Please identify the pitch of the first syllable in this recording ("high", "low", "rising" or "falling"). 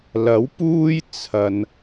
rising